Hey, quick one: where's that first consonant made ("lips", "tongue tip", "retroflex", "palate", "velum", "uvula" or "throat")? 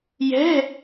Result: palate